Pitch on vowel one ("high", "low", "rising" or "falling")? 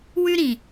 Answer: high